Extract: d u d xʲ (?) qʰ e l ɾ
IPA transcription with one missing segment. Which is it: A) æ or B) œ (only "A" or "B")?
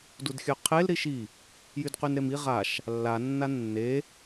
B